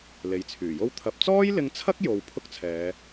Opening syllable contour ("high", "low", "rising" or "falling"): low